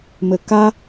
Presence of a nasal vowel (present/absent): absent